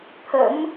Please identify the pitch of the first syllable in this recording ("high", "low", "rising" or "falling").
rising